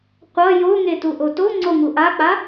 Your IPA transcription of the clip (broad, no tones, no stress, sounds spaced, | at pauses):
qʷ ʌ j o ŋ e t u ʔ o t o ŋ͡ǀ o ŋ u ʔ a k͡p a